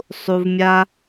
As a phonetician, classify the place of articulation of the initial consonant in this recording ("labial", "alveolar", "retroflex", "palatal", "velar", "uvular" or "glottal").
alveolar